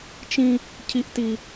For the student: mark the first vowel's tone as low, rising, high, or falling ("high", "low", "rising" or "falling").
high